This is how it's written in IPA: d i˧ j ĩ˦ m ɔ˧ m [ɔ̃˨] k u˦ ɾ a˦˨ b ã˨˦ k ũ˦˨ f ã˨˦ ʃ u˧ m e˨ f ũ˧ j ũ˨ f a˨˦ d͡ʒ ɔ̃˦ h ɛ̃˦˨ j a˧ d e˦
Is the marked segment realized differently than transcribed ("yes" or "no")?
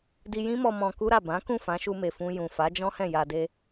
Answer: yes